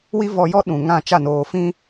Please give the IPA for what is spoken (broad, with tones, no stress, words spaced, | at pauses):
wi˦ vɔ˨jɔ˦ ɗũ˨ŋã˦˨ t͡ʃa˦˨noː˨fĩ˦